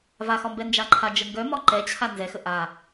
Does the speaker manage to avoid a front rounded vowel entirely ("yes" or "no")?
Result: no